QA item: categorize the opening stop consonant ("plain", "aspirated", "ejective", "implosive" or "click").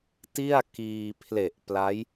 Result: plain